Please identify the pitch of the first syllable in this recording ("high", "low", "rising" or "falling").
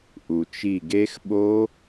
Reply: low